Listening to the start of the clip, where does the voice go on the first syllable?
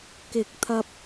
rising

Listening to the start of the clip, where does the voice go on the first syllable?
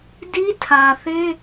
high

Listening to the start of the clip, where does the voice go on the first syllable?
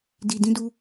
low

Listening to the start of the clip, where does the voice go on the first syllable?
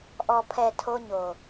low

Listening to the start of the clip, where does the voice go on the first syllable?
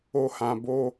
high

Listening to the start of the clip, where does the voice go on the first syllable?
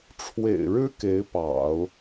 low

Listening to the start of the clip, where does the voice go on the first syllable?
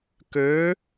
rising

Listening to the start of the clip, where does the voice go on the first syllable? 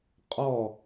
falling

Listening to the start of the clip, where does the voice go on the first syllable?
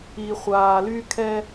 low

